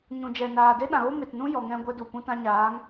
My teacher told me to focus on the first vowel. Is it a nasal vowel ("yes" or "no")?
yes